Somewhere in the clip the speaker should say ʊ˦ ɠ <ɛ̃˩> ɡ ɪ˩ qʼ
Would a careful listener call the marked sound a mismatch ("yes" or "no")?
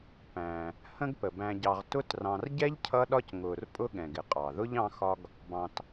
no